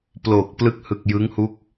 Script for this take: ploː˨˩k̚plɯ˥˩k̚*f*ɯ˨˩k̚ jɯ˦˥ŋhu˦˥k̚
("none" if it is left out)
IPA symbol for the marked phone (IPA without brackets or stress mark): h